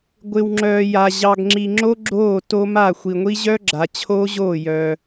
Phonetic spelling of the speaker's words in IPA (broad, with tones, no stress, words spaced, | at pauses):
ɡʷɪ˨wŋ͡ǁœː˨ja˨ ʑɑ˨ɡŋ͡ǁi˨ŋ͡ǁo˦ ɡ͡ǁoː˦˨to˦ma˦˨ xʷi˨ŋʷi˦ ʑœː˦ɡ͡ǁa˨t͡ɕʰoː˦ʑoː˦˨ jœ˦